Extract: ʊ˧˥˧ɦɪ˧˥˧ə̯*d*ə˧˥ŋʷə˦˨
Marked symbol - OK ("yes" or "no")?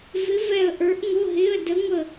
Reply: yes